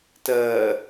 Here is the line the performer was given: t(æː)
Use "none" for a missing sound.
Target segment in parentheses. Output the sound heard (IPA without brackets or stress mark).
ɜː